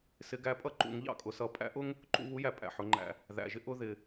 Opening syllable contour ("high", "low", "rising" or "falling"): rising